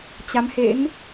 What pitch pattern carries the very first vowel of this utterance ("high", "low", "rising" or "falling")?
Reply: rising